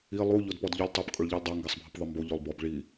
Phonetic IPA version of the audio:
i lˠu ʎodpɔdʎʊlʲ tˤɛp kʼʊɭʎilʲdˤa ŋɡasˤbʱɪpðˤɪmbo ʎolˠbɔb ɭi

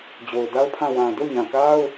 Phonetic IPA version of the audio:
d͡ʑo˨ʊ̯da˦ʊ̯pʰã˦˨ wã˨ do˦˨ɲã˨ka˦ʊ̯

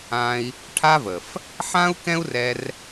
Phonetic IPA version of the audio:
ã˧i̯ | ʈʰa˦və˨f | ħã˦u̯kɛ̃˦u̯rɛ˧r

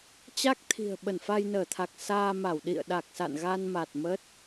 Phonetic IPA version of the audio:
t͡ɕa˦˥k̚ t̪ʰi̤˨˩ə̯ ɓə˧˩nfa˧jnəː˧˩t̪ʰa˨˩k̚ saː˧ma˧˩w ɗḭ˧˨ə̯ɗa˨˩k̚sa̰˧˨n ɣa˧nma˨˩t̚ mə˦˥t̚

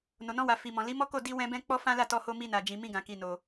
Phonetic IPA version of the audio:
no˨nɔ̃˧wa˨ fi˨mɔ̃˨ li˨˦mɔ˦ko˦˨ di˧wɛ̃˧ bɛ̃˦ k͡pɔ˦fã˦ la˦˨tɔ˧ho˧ mi˧na˨ d͡ʒĩ˨ mĩ˧ɡã˨ki˨no˨

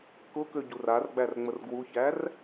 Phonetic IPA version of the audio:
kʊkøɟur arɡ͡bærŋ͡mər ɡwuçær

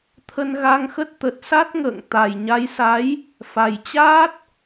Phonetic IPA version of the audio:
t̪ʰə˧nɣa˧ŋxə˦˥t̚ t̪ə˨˩t̚sa˦˥t̚ŋə̰ː˧˨ŋ t̪a˨˩j ɲa˨˦jsa˨˦j | fa˨˩jt͡ɕaː˦˥t̚

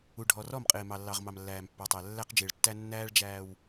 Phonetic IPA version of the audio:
u˨ ɖʱɔ˨rɔ˦˨mqʼɪː˨ mɑ˨lːɑ˨ʁmɑ˨m lːæː˨mpːɑ˨tˤæ˨ lːæ˦q d͡ʒɪː˨ɭtːæ˦ nːæː˦ɭd͡ʒæː˨w

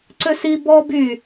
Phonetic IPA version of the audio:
ǀøsi bɔ by

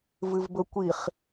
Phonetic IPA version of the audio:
vɨvbɵkʷiχ

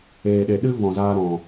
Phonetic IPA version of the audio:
eː˨ɗe˨ ɗɨ˦vɔ̃˨zaː˧ ɾɔ̃˨

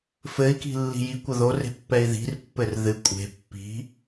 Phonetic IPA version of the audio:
fɘi̯ki̤ lːi̤ji kʷɐðore̤ pːɛi̯ði̤rpːɘr ðɨ kʷʼe̤ pːi̤

